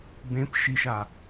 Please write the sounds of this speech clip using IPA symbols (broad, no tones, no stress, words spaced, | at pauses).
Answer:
bẽp ʃiʃa